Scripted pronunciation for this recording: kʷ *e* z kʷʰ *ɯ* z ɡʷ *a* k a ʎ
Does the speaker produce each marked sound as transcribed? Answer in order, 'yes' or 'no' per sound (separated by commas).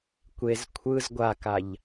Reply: yes, yes, yes